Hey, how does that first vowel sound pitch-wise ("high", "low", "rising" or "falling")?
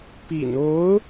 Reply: low